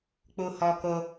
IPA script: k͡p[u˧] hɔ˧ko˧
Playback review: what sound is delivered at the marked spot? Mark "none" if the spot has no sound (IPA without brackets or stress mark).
u˧